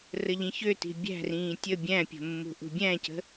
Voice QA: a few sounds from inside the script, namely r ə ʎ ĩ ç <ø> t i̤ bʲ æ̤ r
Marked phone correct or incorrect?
correct